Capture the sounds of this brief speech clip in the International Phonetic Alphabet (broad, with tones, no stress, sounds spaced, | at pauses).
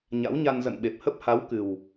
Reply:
ɲ a̰˧˥ w ɲ a˧ n z ə̰˧˨ n ɓ e˨˩ p̚ h ə˦˥ p̚ h a˨˦ w k ɨ˨˩ w